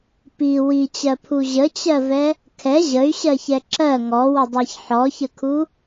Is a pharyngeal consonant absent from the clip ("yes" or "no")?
no